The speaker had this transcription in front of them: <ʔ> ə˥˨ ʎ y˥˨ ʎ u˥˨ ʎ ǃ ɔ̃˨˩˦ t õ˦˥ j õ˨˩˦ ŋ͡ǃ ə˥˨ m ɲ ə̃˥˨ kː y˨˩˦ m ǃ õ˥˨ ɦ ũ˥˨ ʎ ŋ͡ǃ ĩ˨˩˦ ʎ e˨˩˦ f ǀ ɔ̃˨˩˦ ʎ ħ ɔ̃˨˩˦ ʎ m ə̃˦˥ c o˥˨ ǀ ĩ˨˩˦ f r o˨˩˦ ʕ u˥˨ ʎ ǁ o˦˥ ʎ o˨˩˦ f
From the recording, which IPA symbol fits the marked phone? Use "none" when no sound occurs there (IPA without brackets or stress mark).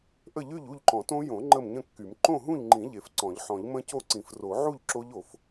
ʔ